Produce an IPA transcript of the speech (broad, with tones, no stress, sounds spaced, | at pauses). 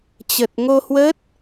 t͡ɕ ə˨˩ t̚ ŋ o˧ h w ə˦˥ t̚